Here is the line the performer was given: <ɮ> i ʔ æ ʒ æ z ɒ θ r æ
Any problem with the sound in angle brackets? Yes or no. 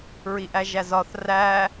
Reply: yes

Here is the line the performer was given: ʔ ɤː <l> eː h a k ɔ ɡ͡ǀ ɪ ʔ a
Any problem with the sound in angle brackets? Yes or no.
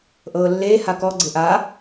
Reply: yes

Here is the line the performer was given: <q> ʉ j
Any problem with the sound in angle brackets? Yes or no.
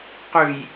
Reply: no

